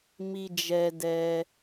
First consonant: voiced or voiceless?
voiced